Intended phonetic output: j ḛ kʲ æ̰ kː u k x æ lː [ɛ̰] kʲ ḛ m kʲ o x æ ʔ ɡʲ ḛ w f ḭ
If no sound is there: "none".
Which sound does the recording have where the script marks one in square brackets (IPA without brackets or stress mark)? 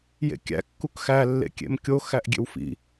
ḛ